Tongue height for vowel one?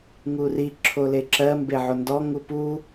high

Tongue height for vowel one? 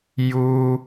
high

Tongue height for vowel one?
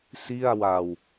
high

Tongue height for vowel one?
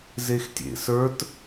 mid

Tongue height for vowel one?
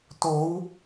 mid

